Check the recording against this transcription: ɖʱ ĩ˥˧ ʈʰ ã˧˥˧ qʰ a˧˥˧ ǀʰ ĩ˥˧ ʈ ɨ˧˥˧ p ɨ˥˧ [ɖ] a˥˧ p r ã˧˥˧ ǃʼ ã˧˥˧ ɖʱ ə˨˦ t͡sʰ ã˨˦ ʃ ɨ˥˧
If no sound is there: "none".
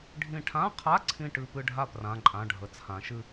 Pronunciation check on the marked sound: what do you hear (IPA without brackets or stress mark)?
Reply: ɖʱ